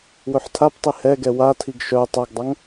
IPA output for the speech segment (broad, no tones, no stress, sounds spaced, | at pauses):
w ɵ ħ tʰ a p tˤ i h ɛ ɡ ɛ w a tʰ i ɡ ʃ œ tˤ a ɡ dˤ a ŋ